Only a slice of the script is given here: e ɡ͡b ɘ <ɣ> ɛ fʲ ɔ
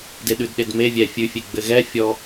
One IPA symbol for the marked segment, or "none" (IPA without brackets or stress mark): ɣ